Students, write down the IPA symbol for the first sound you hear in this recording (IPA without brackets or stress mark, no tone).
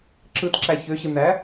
ǁ